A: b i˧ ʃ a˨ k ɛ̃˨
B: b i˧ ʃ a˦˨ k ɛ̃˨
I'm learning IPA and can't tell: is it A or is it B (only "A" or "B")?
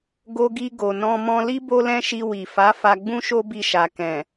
A